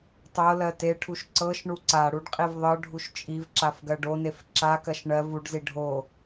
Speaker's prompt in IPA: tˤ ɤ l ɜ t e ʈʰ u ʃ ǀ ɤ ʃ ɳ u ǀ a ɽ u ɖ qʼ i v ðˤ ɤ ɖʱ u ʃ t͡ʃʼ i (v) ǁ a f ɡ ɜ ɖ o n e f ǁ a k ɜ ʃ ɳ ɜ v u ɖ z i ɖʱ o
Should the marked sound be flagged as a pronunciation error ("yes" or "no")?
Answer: no